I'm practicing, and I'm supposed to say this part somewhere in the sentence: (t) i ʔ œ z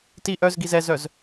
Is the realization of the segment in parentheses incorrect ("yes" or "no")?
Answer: no